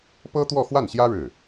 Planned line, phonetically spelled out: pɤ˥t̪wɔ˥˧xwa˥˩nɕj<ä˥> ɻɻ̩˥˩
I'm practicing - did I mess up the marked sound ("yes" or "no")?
no